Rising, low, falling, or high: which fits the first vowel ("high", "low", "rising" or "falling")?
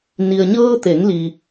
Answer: low